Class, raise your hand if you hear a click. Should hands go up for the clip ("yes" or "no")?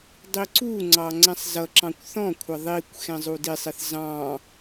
yes